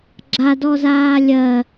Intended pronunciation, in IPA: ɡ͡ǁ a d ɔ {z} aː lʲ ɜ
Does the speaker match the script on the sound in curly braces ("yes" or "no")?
yes